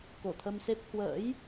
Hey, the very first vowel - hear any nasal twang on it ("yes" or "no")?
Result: no